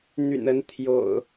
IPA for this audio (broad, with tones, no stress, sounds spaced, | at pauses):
n̪ y̰˨˩ n ə˨˦ n t̪ʰ j o̰˨˩ ʊ̯